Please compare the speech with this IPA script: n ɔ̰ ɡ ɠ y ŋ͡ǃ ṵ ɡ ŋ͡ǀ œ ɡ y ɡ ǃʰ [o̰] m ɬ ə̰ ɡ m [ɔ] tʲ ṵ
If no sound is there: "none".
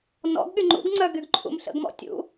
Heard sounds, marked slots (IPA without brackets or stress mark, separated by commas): ṵ, ɔ̰